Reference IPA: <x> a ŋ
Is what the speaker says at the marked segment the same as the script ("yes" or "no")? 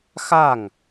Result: yes